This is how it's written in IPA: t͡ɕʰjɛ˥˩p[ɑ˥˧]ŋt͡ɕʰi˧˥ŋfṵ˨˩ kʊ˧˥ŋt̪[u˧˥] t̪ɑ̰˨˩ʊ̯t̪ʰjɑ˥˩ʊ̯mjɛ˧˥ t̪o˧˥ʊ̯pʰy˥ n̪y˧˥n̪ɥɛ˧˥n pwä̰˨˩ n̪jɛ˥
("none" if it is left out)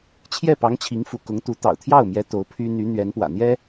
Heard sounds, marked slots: ɑ˧˥, u˧˥

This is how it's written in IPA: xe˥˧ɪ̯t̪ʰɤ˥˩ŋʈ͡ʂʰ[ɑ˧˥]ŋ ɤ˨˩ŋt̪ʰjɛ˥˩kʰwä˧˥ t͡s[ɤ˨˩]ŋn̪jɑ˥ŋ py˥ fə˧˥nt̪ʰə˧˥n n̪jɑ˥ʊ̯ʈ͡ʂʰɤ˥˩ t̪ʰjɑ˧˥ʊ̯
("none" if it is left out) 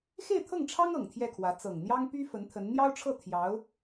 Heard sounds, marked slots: ɑ˥, ɤ˨˩

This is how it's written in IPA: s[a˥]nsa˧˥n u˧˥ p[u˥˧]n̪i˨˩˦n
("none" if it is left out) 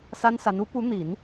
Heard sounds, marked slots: a˥, u˧˥

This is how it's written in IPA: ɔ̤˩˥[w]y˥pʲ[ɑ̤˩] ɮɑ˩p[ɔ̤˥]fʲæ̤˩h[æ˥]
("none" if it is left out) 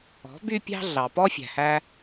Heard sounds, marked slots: b, ɑ̤˥, ɔ˥, æ˧

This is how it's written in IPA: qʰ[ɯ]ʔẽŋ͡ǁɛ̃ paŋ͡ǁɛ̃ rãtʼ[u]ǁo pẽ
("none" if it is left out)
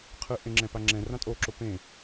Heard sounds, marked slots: ɯ, o

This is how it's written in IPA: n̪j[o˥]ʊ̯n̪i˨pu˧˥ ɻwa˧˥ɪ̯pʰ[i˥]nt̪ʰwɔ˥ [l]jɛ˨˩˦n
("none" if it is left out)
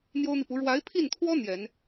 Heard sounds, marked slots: o˥, i˥˩, n̪

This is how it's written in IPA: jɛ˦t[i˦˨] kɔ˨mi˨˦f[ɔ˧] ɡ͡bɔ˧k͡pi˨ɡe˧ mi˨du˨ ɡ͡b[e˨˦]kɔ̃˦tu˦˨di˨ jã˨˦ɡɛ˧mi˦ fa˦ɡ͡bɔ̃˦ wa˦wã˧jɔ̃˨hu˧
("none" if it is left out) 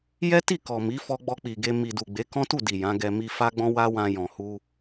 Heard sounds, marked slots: i˦˨, ɔ˧, e˨˦

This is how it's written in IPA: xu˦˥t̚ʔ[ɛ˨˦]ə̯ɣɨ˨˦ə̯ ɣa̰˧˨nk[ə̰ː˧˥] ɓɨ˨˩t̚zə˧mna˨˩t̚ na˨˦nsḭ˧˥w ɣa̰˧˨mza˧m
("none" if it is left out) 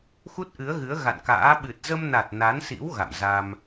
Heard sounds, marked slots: ɨ˨˦, a̰ː˧˥

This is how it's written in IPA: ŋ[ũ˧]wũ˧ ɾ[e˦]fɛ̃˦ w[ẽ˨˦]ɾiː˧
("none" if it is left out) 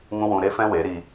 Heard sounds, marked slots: ũ˦, e˦, e˨˦

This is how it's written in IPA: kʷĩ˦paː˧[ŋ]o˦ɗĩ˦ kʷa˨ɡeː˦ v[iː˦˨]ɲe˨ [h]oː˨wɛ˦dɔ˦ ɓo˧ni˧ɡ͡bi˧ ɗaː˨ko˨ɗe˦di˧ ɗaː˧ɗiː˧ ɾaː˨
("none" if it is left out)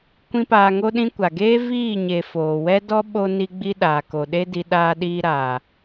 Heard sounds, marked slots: ŋ, iː˦˨, f

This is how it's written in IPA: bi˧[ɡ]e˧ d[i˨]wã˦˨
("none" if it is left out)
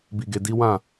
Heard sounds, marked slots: ɡ, i˦

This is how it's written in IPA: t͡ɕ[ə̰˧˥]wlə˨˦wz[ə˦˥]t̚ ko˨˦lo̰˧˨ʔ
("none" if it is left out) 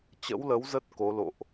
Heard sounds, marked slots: ə̰˧˥, ə˦˥

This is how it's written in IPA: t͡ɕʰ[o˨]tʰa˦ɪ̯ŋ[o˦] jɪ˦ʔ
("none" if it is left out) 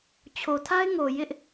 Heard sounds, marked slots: o˨, o˨

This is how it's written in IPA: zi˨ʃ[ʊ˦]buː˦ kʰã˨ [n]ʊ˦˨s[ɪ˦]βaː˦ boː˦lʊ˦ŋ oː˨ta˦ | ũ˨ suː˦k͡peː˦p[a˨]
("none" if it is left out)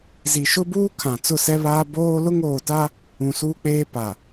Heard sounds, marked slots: ʊ˦, t͡s, ɛ˦, a˨

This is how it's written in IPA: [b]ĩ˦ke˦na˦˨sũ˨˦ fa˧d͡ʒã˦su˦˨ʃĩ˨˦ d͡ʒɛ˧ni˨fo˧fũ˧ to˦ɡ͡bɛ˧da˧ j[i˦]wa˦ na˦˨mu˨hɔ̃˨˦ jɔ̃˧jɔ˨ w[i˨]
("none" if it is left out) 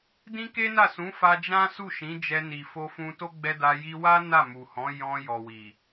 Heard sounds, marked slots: d, i˧, i˨

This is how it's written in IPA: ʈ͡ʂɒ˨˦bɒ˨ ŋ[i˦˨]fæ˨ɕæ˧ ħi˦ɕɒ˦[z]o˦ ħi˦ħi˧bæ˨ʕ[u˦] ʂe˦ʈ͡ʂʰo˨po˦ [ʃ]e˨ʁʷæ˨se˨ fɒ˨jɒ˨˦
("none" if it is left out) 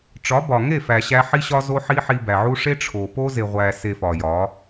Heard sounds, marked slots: e˦˨, z, u˦, z

